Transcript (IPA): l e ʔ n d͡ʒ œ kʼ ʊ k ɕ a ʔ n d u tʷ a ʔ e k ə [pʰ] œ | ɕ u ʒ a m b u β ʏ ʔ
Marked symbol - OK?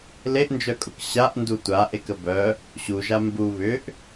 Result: no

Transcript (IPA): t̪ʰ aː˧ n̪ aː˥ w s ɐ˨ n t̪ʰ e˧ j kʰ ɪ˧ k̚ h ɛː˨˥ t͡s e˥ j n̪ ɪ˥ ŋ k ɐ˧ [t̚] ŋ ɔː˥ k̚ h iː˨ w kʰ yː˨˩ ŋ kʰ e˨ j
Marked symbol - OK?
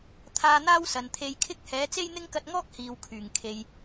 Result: yes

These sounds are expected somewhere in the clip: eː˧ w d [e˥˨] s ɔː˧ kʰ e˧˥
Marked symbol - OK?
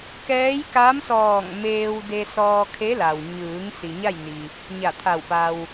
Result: no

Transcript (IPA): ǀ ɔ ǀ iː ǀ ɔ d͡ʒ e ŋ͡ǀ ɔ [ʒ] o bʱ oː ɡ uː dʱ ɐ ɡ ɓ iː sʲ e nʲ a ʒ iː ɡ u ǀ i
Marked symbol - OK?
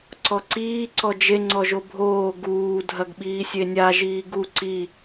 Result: yes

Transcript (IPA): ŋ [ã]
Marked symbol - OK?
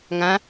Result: yes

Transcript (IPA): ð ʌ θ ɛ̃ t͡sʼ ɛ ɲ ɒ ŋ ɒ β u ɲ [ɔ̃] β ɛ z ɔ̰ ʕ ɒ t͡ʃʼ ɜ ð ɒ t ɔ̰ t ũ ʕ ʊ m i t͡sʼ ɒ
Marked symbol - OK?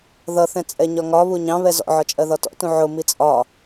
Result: no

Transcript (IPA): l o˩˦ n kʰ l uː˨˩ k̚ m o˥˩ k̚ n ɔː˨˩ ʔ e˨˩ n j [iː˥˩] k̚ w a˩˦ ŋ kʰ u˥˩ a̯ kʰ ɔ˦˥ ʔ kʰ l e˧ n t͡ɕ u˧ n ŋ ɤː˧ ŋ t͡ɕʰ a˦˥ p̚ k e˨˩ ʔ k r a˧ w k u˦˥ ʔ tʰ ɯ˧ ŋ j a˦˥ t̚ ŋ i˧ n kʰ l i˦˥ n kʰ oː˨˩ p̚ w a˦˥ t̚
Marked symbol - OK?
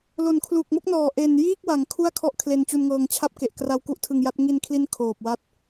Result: yes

